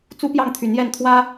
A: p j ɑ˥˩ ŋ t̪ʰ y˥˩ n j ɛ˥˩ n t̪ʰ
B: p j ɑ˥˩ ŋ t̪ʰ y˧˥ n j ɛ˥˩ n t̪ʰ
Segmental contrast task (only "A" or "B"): B